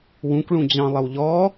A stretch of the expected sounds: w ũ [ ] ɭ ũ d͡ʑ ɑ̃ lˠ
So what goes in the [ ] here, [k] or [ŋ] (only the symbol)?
k